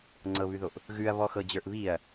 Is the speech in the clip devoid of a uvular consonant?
yes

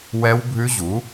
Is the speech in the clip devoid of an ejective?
yes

